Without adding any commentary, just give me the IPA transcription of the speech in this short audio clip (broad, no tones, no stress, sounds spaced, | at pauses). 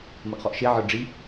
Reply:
m ʌ ʔ χ ɔ ʔ ʃ e ʕ ə˞ ɖ͡ʐ i